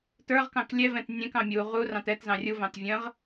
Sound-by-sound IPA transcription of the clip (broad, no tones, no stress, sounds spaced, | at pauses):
t ə˞ ʁ k ɑ̃ k lʲ ɛ v ɛ̃ t nʲ ɛ̃ k ɑ̃ mʲ u ʁ u r ɑ̃ t ɛ t z ɑ̃ rʲ u v ɑ̃ t vʲ ə̃ ʁ